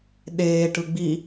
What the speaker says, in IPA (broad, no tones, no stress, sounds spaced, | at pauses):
ɗ eː ʈ ɯ ɡ͡b i